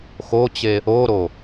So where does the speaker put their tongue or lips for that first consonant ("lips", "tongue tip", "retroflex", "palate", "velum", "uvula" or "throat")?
velum